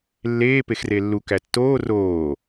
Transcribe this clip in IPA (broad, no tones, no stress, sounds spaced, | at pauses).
lː eː p e x r e lː u k æ tː oː r oː